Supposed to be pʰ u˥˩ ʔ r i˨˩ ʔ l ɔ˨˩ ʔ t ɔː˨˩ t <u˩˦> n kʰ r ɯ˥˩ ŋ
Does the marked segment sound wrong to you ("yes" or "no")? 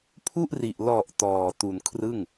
yes